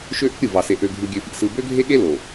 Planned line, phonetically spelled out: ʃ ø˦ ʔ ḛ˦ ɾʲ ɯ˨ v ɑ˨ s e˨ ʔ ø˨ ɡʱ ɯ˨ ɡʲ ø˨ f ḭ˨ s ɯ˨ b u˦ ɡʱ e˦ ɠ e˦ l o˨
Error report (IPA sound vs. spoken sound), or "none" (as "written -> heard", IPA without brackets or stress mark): u˦ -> ø˦